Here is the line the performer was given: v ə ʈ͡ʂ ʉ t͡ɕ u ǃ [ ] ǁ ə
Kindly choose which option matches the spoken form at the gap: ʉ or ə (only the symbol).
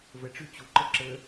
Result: ə